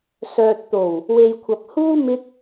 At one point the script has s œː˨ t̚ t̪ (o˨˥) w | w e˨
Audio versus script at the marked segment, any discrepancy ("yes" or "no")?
yes